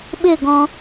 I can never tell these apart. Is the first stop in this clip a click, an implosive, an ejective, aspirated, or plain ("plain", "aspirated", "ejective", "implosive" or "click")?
implosive